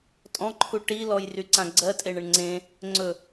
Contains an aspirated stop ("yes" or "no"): yes